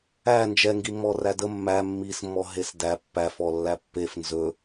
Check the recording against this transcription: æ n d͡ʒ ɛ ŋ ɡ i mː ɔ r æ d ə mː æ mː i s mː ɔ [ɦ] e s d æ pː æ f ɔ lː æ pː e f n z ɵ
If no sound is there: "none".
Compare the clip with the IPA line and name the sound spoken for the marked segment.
ɦ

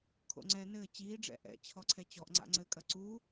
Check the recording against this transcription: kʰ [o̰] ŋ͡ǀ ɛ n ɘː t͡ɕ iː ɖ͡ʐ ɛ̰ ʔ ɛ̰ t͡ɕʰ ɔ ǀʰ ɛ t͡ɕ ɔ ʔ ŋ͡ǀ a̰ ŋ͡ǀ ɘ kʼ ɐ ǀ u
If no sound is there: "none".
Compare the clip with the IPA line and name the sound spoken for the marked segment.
o̰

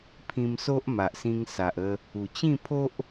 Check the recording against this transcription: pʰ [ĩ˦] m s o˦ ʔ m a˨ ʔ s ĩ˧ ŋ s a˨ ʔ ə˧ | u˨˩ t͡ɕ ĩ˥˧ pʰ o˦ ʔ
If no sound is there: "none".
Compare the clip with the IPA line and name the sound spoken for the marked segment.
ĩ˧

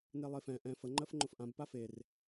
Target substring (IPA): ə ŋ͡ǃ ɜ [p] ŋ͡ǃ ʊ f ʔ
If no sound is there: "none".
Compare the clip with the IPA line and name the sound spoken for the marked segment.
f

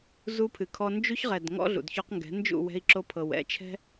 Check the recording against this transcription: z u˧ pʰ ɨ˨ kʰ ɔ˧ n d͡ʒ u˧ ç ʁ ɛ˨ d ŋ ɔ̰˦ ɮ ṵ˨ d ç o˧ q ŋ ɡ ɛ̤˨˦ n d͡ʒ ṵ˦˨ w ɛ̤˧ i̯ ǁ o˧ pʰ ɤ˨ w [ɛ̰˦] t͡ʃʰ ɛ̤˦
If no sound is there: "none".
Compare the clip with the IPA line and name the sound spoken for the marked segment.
ɛ̰˧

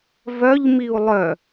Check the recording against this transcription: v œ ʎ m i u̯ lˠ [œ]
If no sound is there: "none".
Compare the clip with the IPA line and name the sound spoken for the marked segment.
œ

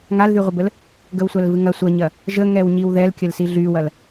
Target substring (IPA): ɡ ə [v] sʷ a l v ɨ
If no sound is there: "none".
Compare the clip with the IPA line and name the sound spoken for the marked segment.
w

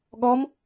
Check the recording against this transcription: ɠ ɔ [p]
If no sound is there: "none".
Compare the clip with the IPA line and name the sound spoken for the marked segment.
m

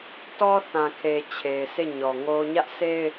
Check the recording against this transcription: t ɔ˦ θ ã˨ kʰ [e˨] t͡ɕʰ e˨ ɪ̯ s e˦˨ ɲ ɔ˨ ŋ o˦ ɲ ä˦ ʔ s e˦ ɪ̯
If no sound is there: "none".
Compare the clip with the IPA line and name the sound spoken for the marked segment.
e˨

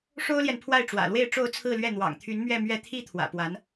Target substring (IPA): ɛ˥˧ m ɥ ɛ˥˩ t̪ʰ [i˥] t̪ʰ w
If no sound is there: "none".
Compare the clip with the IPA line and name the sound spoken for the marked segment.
i˥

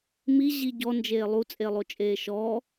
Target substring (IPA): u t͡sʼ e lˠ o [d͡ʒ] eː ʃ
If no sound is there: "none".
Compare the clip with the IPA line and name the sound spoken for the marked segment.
t͡ʃʼ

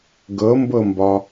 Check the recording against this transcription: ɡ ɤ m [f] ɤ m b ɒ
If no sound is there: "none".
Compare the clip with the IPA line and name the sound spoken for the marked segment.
b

